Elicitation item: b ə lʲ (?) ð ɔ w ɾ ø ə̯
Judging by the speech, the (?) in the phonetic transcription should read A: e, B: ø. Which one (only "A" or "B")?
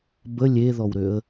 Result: A